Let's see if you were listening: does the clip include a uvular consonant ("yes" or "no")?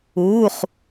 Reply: yes